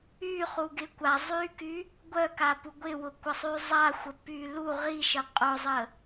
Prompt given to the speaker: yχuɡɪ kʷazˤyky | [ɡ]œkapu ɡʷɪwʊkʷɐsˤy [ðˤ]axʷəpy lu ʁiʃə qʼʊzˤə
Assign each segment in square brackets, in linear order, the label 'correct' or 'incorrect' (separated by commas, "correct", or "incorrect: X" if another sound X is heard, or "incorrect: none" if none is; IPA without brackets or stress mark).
incorrect: ɡʷ, incorrect: zˤ